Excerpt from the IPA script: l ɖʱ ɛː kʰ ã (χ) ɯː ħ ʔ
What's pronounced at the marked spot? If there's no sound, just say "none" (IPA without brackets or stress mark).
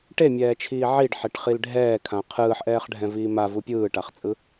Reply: qʰ